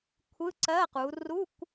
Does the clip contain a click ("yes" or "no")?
yes